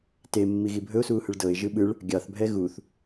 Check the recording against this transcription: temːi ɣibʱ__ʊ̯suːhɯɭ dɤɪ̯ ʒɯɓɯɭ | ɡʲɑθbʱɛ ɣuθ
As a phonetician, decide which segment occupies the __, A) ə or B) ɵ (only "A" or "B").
B